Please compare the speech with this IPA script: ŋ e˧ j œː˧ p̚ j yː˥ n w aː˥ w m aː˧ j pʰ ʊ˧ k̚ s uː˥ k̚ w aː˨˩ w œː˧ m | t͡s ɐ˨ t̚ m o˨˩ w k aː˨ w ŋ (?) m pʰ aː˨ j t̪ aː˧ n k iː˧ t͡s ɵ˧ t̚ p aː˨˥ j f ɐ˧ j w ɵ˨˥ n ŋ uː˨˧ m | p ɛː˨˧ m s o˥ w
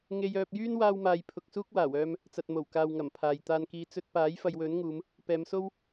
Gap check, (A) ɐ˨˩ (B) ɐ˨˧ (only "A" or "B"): A